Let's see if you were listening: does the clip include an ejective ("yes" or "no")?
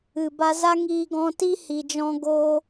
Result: no